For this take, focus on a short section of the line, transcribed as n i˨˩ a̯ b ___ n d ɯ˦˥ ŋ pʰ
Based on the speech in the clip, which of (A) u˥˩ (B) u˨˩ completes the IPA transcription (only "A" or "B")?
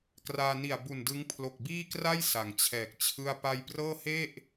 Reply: B